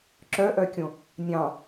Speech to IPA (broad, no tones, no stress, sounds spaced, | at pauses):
ǁ œ ʔ œ kʲ õ | nʲ ɑ̃